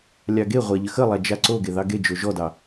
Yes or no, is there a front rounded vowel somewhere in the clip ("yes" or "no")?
no